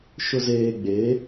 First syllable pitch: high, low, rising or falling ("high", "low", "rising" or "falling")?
low